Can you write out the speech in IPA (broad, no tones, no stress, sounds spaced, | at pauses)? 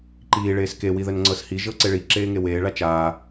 ǃ iː ɭ eː s k e w i ð ə n ŋ͡ǀ ɤ s h i ʒ ɤ ǀ e ɭ i ǁ eː ŋ e w eː ɭ a t͡ʃ aː